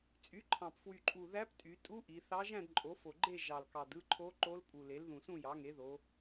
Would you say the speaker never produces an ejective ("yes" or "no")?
no